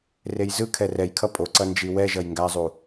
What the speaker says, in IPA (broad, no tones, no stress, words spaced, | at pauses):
rejzɯkʰɛ rɛj kʰʌpʼoǀʌ nd͡ʒiwɛʒʌj ŋɡazˤu